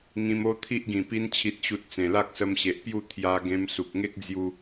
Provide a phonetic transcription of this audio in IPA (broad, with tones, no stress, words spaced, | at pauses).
ŋĩ˧mo˦t̪ʰi˦ʔ ɡĩ˨˩pi˧nt͡ɕʰi˨t̚ɕu˨t̚ t͡sẽ˨˩la˦k̚sə˧mɕe˨ʔ pju˥˧ t̪ʰja˧ɡẽ˧m su˨k̚ŋe˦k̚d͡zju˧